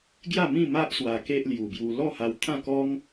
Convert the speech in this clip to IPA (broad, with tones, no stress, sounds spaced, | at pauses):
ɡ j a˥˧ m ĩ˥˧ m a˦ ʔ s w a˧ k e˦ ʔ l j u˨˩ b j u˧ l ɔ˥˧ h a˧ w t̪ʰ ã˥˧ k ɔ˦ ŋ